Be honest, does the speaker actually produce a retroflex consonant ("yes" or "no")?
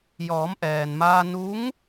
no